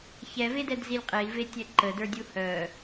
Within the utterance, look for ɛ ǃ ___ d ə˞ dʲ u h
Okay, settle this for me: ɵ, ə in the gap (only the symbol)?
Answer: ə